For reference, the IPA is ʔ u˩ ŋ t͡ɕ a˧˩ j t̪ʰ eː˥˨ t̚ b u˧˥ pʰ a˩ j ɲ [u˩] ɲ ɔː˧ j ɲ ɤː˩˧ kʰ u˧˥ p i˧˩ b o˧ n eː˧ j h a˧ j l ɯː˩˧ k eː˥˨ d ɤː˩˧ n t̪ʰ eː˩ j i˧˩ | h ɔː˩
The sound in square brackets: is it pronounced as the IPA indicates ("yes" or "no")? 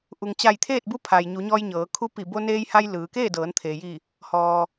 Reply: no